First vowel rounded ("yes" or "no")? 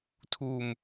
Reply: yes